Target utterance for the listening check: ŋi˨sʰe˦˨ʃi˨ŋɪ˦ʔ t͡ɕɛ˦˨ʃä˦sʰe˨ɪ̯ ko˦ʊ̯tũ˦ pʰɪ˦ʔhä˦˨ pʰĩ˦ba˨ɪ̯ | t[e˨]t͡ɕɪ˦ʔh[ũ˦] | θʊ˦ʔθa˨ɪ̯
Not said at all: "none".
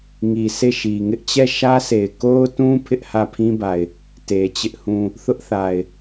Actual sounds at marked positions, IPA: e˨, ũ˦

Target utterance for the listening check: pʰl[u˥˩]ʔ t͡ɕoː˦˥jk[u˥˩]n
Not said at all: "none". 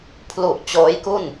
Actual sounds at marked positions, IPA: u˨˩, u˥˩

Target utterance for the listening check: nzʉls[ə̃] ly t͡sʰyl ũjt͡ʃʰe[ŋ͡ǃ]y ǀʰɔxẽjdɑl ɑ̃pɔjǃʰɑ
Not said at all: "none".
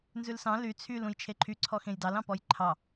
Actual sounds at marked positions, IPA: ɑ̃, ǃʰ

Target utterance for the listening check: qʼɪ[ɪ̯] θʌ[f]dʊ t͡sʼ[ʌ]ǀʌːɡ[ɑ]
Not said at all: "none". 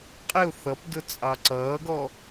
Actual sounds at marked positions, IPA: ʊ̯, p, ɑ, ɔ

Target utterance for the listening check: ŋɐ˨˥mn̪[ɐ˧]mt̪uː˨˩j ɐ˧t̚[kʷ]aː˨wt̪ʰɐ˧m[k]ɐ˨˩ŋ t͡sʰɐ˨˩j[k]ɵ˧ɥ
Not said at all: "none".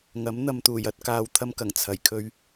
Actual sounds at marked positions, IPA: ɐ˧, k, k, kʰ

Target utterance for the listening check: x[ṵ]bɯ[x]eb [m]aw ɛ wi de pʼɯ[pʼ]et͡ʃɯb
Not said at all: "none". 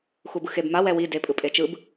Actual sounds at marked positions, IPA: u, x, m, pʼ

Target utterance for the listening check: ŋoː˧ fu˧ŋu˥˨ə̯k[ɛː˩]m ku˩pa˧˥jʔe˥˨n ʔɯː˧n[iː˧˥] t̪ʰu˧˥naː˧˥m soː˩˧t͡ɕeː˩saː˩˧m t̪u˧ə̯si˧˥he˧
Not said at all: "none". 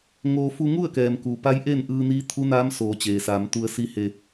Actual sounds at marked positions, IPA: ɛː˩, iː˧˥

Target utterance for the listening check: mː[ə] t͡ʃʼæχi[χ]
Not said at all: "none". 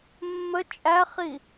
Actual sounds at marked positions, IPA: ə, none

